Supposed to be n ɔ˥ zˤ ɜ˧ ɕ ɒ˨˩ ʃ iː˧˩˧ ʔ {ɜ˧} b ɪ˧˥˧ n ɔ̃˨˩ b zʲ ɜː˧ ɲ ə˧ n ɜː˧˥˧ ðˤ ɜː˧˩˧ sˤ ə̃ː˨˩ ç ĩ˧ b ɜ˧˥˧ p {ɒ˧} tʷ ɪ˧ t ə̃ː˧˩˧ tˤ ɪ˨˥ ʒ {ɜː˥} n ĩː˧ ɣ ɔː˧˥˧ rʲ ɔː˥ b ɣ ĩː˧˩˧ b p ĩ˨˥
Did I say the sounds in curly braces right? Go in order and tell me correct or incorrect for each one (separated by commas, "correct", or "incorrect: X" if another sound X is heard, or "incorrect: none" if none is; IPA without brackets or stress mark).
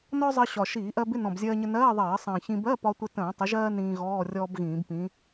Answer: correct, correct, correct